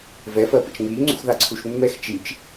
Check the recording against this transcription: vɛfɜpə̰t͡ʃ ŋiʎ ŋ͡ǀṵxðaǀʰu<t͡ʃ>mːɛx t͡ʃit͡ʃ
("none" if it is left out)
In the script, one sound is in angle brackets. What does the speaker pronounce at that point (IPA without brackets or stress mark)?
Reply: ʃ